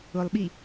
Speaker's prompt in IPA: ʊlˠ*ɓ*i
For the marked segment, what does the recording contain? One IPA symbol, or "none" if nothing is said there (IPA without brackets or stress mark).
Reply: ɓ